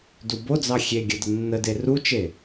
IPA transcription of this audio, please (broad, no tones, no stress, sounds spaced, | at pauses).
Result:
d u b o d͡z ɑ xʲ e ɡʲ ə d ə nː ə d e r u t͡ʃ e